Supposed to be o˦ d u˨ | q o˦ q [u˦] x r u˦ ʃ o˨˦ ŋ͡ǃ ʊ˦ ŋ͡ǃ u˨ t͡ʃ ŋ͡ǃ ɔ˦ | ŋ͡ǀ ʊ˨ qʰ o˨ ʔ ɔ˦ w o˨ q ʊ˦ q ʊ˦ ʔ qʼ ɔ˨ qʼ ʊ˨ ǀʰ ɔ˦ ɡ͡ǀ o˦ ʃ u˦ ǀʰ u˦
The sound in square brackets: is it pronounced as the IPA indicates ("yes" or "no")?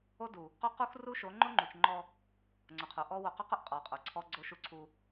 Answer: yes